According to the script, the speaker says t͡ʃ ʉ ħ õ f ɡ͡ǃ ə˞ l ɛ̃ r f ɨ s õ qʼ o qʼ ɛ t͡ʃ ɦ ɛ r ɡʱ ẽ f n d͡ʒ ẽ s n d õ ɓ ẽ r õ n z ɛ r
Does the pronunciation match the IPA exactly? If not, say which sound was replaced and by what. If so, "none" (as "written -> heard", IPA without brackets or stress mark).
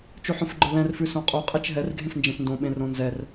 ɨ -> ʉ